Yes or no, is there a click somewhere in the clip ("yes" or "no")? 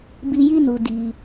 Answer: no